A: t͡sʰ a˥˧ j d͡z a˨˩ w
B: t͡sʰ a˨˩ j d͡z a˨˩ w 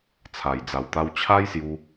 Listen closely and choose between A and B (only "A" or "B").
B